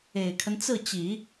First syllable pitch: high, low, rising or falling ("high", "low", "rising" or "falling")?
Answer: low